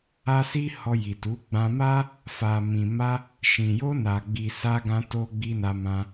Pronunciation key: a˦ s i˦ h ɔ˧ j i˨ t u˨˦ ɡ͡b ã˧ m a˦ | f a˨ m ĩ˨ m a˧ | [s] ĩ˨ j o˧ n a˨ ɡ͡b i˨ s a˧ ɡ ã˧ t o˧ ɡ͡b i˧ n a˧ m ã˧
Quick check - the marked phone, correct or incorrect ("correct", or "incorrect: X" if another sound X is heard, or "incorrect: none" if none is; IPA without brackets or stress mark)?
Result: incorrect: ʃ